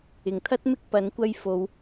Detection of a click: absent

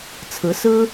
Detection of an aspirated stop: present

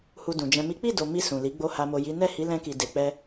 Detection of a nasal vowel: present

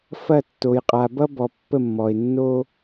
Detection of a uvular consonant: present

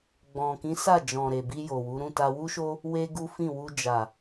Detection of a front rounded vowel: absent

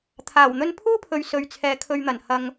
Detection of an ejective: absent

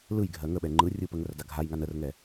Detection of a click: present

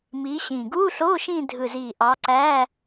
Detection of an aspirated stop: absent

